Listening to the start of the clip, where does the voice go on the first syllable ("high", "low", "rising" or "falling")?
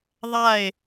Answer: falling